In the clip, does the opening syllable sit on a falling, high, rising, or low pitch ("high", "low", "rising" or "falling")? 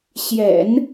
low